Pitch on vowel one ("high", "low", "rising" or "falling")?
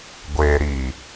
low